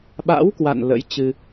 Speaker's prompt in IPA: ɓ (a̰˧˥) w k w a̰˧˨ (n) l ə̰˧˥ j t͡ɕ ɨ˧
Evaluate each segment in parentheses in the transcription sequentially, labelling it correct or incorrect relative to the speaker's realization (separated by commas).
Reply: correct, correct